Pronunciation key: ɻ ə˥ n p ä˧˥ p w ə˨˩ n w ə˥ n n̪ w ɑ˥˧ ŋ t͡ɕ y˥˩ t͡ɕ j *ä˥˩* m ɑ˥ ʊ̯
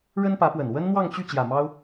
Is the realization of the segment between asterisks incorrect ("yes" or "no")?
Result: yes